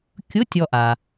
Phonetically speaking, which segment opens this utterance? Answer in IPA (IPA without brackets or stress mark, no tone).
kʲ